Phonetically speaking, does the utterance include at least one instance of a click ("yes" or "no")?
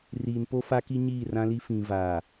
no